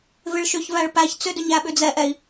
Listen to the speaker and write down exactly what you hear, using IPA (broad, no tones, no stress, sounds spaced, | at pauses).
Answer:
v ɪ ɭ ʃ ʏ ç v æ ɭ p æ ç t͡s ʏ d ʏ ɲ æ ɓ ʏ d͡z ɛ ʔ ɛ i̯